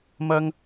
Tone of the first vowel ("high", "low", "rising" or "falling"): high